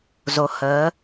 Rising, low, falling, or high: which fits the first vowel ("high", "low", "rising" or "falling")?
rising